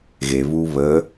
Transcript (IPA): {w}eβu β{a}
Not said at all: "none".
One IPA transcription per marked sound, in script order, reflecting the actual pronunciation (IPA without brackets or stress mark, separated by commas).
ɣ, ə